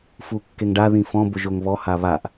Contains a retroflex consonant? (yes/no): yes